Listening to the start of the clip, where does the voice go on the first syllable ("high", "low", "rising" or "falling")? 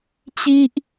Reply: high